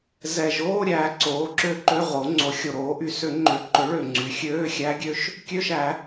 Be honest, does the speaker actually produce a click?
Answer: yes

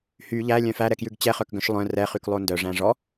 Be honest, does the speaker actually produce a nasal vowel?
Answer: yes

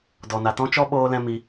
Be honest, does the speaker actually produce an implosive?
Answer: yes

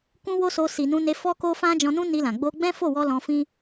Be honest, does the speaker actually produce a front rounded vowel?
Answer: no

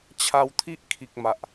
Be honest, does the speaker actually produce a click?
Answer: no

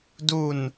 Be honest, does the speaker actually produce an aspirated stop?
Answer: no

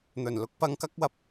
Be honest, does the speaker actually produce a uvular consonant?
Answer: no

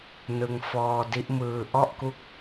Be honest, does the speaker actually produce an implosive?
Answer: no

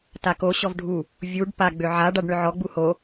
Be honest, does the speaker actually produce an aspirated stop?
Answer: no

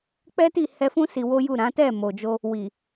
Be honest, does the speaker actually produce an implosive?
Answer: no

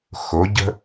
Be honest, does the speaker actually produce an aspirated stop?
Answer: no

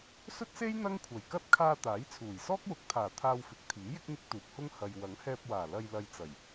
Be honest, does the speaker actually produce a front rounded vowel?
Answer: no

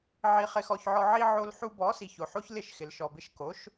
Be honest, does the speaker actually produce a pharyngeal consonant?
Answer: yes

